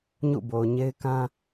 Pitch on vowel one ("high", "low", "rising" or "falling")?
falling